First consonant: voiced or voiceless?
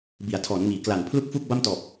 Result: voiced